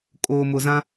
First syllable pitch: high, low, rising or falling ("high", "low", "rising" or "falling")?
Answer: low